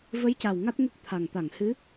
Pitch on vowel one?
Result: rising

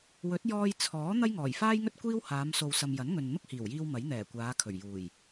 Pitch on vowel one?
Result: rising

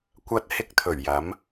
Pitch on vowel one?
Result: high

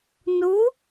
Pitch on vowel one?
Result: rising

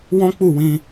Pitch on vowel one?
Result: high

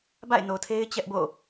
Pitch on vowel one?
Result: falling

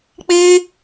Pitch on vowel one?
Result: high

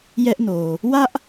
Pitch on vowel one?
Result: high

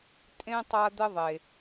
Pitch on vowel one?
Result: high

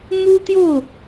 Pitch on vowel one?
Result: high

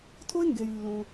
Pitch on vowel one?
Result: high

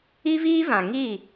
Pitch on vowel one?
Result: high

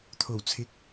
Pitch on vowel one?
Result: low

